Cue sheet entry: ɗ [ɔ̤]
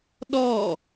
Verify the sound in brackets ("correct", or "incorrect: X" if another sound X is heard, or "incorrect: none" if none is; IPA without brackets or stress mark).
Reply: incorrect: ɔ